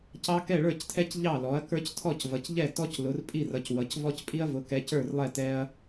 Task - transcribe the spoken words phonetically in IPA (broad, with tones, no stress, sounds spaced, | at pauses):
c ɑ˦ k ɛ˥˨ ɭ ə˞˥˨ c tʰ ɛ˦ c ʎ ɑ˥˨ l ɔ˨˥ ɐ̯ k ə˞˦ c tʰ ɔ˥˨ c v ʌ˨˥ c ʎ ɛ˥˨ t ɔ˦ c l ʊ˨˥ r pʼ i˥˨ r ʌ˨˥ c w ʌ˨˥ c v ɔ˦ c pʼ i˦ ɐ̯ v ʊ˨˥ k ɛ˨˥ c ə˞˥˨ r lˠ ɛ˥˨ t ɛ˦ ɐ̯